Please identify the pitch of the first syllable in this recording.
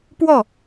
falling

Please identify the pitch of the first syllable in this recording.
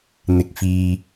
low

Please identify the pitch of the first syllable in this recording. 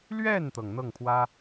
falling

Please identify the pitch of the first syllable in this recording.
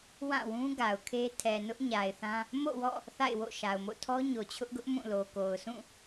falling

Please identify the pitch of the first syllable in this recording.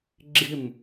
falling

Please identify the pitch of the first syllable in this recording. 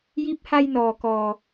rising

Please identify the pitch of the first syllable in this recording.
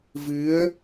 rising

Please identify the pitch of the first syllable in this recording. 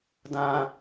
low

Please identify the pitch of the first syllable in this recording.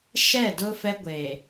falling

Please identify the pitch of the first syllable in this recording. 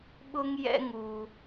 high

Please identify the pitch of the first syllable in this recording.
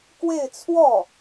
falling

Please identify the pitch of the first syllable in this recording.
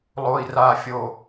low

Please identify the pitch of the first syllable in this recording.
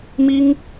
high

